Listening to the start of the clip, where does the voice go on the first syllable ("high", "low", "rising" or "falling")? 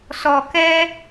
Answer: low